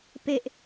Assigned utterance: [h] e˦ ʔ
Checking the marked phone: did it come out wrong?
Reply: yes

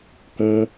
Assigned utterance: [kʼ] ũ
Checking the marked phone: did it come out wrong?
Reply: yes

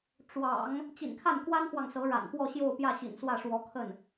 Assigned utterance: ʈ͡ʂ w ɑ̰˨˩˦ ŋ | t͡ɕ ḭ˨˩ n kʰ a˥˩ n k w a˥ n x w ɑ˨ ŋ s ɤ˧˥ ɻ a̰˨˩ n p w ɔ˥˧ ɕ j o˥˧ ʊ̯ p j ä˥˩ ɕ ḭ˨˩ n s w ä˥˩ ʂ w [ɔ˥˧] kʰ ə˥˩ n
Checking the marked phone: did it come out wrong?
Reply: yes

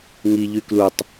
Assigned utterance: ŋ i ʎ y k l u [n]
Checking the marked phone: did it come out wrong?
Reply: yes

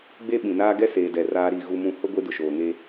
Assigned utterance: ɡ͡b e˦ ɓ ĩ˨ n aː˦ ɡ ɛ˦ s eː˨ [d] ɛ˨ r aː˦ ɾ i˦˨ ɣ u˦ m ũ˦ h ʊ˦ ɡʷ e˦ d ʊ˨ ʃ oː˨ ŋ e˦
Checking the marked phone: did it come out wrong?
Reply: no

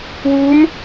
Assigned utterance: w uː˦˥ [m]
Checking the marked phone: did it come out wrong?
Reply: no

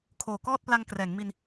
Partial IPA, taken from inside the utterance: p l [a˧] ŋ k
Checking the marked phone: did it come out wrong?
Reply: no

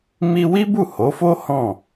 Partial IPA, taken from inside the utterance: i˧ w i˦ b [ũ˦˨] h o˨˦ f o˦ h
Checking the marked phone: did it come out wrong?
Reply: yes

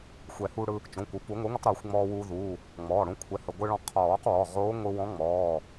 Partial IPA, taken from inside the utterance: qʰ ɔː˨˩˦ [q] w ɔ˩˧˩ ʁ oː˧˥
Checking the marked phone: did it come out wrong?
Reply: no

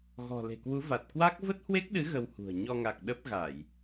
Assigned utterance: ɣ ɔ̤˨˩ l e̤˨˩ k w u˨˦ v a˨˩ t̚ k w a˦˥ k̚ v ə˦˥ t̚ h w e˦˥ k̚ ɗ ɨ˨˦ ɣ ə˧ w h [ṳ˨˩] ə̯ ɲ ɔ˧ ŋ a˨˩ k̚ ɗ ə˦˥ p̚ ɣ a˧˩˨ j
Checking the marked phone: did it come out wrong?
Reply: no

